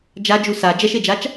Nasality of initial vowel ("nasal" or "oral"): oral